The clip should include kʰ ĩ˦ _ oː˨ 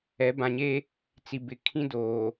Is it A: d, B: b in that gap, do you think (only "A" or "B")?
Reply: A